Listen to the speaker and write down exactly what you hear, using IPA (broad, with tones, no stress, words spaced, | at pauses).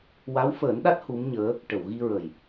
wa˧˥wfəː˨˩˦nɗa˦˥t̚ hu˧˥mɲəː˧˥ | ʈə˨˩˨wɣi˧ɹə˨˩j